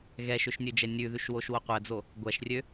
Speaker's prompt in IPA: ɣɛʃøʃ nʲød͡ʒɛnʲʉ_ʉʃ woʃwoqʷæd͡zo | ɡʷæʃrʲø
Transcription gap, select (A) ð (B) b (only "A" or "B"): A